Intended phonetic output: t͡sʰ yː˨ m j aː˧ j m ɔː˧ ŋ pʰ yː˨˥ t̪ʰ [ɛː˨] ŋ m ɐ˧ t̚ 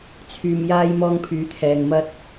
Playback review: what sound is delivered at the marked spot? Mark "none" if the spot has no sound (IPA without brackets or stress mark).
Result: ɛː˨